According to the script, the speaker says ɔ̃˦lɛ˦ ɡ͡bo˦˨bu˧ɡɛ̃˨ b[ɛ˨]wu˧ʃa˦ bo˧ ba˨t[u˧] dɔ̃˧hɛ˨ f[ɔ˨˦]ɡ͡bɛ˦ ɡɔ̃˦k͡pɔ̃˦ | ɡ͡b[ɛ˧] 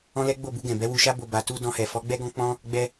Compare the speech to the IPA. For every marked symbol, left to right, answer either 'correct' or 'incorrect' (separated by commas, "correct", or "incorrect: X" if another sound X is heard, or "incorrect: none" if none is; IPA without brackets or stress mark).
incorrect: ɛ˨˦, correct, correct, correct